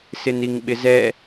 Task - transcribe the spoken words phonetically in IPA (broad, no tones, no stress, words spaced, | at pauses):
sɪniŋɓɪzɛ